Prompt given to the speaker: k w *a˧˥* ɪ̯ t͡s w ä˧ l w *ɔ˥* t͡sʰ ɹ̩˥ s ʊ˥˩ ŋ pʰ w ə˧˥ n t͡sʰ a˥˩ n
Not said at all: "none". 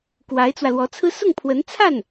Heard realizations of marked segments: a˧˥, ɔ˧˥

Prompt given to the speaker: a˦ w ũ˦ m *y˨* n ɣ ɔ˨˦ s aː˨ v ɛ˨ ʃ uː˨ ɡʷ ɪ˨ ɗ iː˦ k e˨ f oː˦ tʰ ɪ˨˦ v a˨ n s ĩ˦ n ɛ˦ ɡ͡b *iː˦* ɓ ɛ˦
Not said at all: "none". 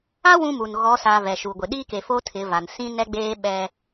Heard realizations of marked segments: u˨, eː˦

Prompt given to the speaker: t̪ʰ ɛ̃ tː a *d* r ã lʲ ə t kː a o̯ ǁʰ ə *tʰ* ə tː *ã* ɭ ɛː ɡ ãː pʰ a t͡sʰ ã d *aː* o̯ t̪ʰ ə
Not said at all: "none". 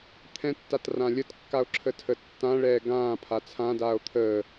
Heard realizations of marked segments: t, tʰ, ã, aː

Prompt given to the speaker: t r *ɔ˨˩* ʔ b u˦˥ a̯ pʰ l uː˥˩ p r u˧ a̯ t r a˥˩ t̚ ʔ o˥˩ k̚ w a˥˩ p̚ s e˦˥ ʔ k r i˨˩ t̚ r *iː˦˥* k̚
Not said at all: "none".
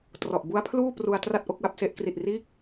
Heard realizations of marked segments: ɔ˨˩, iː˦˥

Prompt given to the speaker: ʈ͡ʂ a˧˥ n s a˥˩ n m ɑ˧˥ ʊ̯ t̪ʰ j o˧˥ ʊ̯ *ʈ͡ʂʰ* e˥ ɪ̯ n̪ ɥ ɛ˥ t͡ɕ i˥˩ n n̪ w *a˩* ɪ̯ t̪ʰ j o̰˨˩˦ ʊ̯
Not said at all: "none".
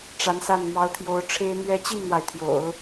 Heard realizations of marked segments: ʈ͡ʂʰ, a˩

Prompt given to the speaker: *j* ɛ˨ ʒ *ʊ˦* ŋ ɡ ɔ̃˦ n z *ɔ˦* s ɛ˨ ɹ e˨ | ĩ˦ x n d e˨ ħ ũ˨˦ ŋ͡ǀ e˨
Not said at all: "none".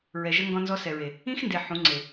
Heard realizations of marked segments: ɹ, ə˦, ɔ˦

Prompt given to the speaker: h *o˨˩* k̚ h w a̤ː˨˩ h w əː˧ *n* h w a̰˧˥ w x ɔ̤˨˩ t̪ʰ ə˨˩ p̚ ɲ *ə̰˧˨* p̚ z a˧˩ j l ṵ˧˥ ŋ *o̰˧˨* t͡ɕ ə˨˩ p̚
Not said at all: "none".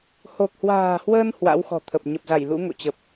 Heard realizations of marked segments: o˨˩, n, ə˨˩, o̰˧˨

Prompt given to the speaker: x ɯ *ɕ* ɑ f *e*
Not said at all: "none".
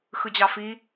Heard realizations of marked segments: d͡ʑ, i

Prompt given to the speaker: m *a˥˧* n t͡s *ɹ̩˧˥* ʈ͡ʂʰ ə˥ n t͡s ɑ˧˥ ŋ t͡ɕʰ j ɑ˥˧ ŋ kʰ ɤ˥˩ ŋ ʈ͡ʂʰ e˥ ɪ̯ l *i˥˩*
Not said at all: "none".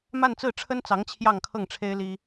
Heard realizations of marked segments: a˥˧, ɹ̩˥˩, i˥

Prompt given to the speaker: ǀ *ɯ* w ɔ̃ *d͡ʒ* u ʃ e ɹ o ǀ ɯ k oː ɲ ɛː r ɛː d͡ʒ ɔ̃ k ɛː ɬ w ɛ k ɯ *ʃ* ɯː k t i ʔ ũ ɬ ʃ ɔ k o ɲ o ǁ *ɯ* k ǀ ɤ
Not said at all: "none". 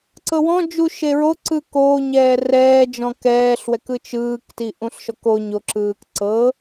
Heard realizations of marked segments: ɤ, d͡ʒ, t͡ʃ, ɯː

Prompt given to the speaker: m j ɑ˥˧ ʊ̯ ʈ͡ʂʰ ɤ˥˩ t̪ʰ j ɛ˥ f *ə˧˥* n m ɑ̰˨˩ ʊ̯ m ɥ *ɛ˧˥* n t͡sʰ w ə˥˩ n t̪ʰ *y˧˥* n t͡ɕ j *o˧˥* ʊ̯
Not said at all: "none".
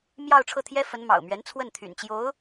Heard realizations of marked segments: ə˧˥, ɛ˧˥, y̰˨˩, o˧˥

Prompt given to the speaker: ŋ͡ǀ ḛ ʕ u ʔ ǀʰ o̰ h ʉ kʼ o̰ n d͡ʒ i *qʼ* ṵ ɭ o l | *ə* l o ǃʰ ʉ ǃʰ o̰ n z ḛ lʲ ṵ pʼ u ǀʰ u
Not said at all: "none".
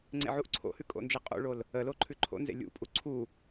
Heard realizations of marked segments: qʼ, ə

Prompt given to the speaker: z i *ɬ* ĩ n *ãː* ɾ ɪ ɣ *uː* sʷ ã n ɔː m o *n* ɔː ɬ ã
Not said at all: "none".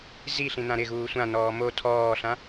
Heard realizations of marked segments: ɬ, ã, uː, tʰ

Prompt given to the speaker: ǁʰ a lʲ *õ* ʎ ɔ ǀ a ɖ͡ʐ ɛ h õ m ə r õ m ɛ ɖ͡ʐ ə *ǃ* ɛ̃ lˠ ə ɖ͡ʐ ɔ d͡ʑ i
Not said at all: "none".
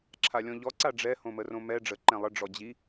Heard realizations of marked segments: ɔ̃, ǃ

